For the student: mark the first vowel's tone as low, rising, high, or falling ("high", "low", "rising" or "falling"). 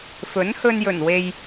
rising